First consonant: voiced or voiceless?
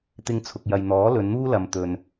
voiceless